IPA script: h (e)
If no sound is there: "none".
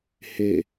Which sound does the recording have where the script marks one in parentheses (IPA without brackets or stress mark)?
e